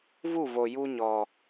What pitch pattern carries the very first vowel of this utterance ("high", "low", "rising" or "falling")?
falling